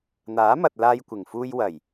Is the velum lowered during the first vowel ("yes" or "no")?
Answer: no